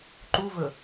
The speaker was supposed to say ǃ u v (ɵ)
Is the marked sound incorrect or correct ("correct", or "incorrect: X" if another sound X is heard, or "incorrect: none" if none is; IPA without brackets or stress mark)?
correct